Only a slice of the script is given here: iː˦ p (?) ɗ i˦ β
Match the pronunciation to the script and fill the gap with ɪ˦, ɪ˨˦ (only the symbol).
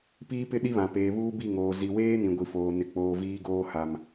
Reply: ɪ˦